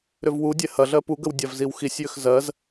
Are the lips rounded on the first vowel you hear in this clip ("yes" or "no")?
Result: yes